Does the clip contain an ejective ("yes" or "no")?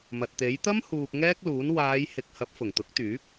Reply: no